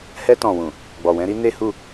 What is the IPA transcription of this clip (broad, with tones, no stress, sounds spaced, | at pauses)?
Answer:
h ɛ˧ t ɔ̃˨ w ũ˨ | ɡ͡b ɔ˨ w ɛ̃˧ ɾ i˦ n e˦ h u˦˨